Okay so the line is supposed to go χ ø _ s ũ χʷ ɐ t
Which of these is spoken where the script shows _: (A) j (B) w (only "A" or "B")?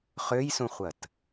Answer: A